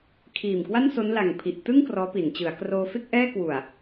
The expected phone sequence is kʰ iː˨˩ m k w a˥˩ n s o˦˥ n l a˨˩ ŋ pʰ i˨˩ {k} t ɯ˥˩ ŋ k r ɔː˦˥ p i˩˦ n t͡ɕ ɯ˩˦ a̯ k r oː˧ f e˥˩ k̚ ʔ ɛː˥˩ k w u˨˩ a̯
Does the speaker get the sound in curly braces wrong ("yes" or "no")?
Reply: yes